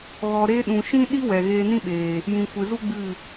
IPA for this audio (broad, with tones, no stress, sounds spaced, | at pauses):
ɣ ɔ˧ ɾ eː˦ ɗ ũ˨ ʃ ĩ˦ ɗ i˦ w ɛ˨ ɣ eː˧ n ĩ˦ ɓ eː˨ | j ĩ˨ kʷ ɨ˨ z u˦ ɡ͡b ɨ˦˨